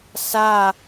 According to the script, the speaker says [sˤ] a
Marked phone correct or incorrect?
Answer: incorrect